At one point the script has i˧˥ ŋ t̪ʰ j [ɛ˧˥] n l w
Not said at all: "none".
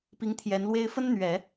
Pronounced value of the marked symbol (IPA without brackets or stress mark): ɛ˧˥